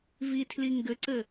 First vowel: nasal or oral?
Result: oral